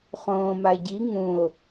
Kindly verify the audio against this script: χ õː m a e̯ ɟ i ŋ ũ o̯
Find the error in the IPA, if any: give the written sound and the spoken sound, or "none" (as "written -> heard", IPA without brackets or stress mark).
none